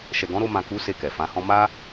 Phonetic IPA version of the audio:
ʃ ɛ˨ ɡ ɔ̃˨˦ ɾ o˧ m ã˨ k u˨˦ s e˦˨ k ɛ˨ f ã˨˦ h ɔ̃˦ m a˦

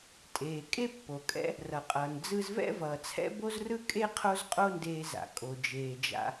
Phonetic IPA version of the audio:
tʼ eː˩ kʼ e˥ pː o˩ kʼ ɛ̰˥ | r ʌ˩ qʼ ʌː˩ n d͡z ɯ˧ z v ɛ̰˥ v ʌː˩ t͡sʰ ɛ̰˥ b o˥ z r ɯ˥ kʼ e˥ qʰ o˥ z qʼ o˥ n d eː˧ z a̰˩ kʼ o˩ d͡ʒ eː˩ d͡ʒ a̰˧

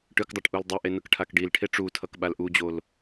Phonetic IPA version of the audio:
ʈ ɯ k dˤ o ʈ ʔ u l dˤ e ʔ e n ɯ k ʈʰ a k ɖ i l ʈʰ e ʈ͡ʂ u tʰ ʌ k ɓ a l ʔ u d͡ʑ o l

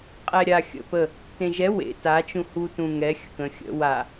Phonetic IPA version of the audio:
qʼ ɛ ɾʲ a xʲ ə̰ p ə | t ẽ ʒ ɛ w ḛ t a t͡ʃ ũ h u t ũ ŋ ɛ xʲ ə̰ k ə̃ xʲ ə̰ w a

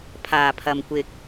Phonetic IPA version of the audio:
pʰ aː˨˩ pʰ ɐ˨ m kʷ ɪ˨ k̚

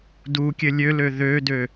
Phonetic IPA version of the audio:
d u kʲ ɘ lʲ ø l ø ð ø d ø

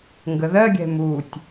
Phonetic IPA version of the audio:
ŋ ɡ ə ð ɜ ɡʲ ɛ̤ m u tʲ

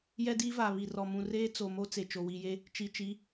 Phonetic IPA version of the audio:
j ɛ˦ d iː˦ v aː˨ β i˨ r ɔ˨ m ũ˨ r eː˦ t͡s o˨ m o˦ t͡s e˨ t͡ʃ o˨ w i˨ j e˦ | t͡ʃ i˨ t͡ʃ i˨˦

